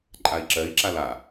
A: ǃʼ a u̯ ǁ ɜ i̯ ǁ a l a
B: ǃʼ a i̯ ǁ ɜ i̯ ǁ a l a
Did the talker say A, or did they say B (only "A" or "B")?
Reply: B